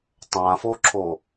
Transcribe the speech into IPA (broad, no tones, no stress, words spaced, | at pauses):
tˤãfoǁʰo